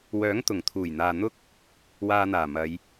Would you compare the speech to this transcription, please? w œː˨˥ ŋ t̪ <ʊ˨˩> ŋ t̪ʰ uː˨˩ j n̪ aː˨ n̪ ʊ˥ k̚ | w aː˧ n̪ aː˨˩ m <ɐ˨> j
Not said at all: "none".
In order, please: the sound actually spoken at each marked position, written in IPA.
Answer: ʊ˨˩, ɐ˨˧

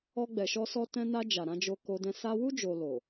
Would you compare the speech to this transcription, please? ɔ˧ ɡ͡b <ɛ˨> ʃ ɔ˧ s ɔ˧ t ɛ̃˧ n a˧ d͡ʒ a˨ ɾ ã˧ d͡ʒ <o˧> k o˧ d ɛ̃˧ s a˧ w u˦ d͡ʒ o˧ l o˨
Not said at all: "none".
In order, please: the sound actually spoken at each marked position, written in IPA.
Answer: ɛ˨, o˧

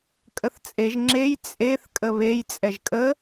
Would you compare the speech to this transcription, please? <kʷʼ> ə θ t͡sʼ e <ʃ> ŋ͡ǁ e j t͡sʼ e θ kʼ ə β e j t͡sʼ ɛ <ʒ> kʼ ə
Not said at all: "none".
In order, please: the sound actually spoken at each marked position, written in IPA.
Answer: kʼ, ʒ, ʒ

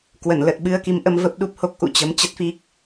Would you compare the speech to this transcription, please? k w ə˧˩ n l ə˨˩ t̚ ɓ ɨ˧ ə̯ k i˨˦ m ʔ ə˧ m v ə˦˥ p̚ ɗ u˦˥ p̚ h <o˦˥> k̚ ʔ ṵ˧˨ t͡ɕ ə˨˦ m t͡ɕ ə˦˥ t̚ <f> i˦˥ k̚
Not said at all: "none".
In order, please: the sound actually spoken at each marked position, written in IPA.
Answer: o˦˥, f

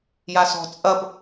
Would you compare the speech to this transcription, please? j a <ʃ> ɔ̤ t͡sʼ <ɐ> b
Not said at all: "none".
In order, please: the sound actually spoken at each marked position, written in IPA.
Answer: s, ɐ

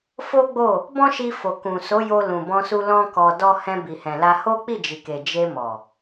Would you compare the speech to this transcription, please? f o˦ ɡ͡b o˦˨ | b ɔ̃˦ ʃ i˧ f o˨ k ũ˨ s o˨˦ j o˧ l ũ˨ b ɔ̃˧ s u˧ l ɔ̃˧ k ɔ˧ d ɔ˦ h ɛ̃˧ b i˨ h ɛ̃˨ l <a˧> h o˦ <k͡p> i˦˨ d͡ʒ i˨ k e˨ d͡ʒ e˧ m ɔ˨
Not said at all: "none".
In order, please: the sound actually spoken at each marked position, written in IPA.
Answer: a˧, k͡p

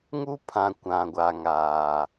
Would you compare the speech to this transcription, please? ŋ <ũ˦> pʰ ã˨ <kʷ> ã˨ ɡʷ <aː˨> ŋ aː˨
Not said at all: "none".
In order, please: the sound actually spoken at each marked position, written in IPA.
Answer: u˦, kʷ, a˨

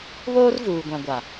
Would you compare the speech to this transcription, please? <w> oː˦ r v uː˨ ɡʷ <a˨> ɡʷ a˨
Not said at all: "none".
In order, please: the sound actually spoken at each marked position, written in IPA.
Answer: β, ã˨

